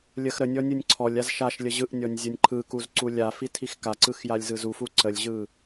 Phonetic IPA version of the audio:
lʲ ə x ɾ ə nʲ ɔ nʲ ɯ nʲ ǀʰ ɔ lʲ a z ʃ a ʃ lʲ ə ʑ ɯ ʔ nʲ ɔ nʲ zʲ ə nʲ ǃʰ ɯ k u z ǀ u lʲ a f i tʰ i x k a ǀ ɯ x j a lʲ z ɯ z u f u ǀ ə lʲ ʑ ɯ

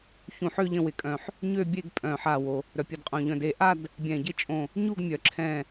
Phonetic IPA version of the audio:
ç ũ˧˩ ħ ø˥˧ ʎ ə̃˥˧ w ɪ˧˩ kʼ œ̃˧˩ ħ | ɲ ø˥˧ bʲ e˥˧ ɡ pʼ œ̃˧˩ ħ a˧˩ w o˩ | ɾ œ˩ pʲ ə˧˩ d qʼ õ˧˩ ʎ œ̃˧˩ d e˧˩ ʔ a˥˧ d | bʲ ɛ̃˧˩ ɟ ɪ˥˧ t͡ʃʼ õ˧˩ | ɲ u˥˧ ɡ mʲ œ˩ ǁʰ ɛ̃˧˩

